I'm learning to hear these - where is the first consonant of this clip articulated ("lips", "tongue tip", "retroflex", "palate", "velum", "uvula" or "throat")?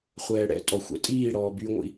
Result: uvula